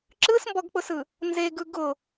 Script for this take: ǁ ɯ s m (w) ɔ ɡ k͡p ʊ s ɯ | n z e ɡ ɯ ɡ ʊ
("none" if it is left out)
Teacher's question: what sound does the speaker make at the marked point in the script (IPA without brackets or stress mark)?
b